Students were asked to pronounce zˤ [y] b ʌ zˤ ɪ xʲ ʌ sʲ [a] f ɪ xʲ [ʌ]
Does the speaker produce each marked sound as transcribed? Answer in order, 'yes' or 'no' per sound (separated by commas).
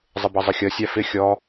no, yes, no